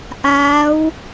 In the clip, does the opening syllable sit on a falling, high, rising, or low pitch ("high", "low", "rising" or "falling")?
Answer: rising